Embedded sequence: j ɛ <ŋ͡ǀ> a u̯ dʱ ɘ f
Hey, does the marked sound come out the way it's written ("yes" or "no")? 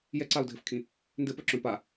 no